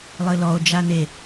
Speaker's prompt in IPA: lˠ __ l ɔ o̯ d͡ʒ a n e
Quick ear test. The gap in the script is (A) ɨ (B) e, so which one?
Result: A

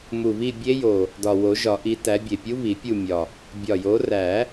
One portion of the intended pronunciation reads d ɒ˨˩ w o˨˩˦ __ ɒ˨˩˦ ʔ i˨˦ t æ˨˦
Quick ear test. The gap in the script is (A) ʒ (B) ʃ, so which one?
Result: A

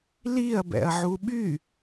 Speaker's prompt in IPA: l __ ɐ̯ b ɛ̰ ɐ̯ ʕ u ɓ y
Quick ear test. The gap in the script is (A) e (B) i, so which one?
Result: B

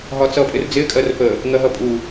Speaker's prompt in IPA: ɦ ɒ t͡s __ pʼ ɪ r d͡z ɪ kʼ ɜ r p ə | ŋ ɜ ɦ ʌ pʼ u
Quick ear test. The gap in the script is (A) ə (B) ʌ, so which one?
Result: B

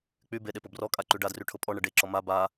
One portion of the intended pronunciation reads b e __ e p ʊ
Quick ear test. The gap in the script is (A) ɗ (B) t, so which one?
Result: A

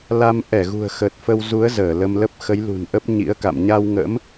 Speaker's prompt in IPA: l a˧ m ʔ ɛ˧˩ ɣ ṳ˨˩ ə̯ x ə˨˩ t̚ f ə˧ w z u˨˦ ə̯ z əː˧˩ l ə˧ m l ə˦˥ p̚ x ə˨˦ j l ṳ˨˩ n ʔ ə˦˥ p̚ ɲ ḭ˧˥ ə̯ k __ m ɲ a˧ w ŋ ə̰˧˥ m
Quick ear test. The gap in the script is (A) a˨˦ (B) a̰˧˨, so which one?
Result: B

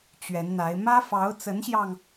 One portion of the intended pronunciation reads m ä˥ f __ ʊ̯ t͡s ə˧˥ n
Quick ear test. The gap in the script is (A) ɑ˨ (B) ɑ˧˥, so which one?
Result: B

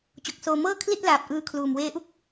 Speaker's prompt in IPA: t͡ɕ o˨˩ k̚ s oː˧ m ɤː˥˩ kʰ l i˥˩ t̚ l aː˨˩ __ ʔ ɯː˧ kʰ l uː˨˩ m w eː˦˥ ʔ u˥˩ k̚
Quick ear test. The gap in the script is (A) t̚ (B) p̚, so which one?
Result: B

